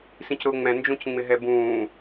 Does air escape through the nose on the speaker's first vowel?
yes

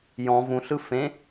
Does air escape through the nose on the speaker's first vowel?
yes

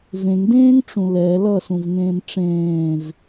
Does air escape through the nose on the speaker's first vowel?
yes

